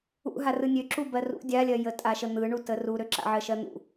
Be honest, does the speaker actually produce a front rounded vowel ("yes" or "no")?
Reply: yes